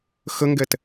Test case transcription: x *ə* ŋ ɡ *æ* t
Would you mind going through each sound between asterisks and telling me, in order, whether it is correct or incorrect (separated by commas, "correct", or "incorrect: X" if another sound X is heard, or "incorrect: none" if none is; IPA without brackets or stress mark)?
correct, incorrect: ɛ